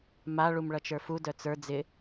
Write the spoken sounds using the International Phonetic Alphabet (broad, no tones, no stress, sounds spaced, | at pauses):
m a ɭ u m ɭ ʌ t͡ʃ ə˞ f u d œ t͡s ə˞ d͡z ɪ